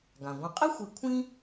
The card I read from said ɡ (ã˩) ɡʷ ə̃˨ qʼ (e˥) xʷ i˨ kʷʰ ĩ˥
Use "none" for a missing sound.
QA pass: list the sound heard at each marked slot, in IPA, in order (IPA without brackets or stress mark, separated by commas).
ã˩, e˥